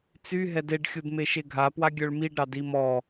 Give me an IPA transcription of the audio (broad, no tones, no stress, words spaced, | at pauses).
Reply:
t͡syɦɛd eɖxʲud meʃeɡʱapwa ɡʲœɭmiɖɾɑd imɔ